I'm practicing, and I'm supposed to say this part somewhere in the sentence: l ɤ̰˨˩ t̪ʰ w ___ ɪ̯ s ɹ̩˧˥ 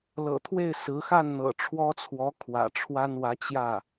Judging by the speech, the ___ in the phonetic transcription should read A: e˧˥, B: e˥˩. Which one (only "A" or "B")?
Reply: B